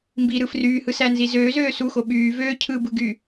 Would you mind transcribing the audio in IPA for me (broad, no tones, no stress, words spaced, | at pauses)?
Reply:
mbiɾɯ fryːhɯsænzi zøːzøː suxo ɓyː vøː cʰɯbɯɡy